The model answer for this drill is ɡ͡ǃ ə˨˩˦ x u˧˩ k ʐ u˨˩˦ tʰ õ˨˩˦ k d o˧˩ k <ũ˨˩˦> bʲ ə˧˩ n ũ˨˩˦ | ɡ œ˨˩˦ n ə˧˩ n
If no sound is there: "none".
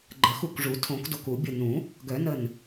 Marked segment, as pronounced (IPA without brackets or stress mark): u˨˩˦